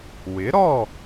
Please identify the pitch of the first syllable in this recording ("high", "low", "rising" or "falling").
rising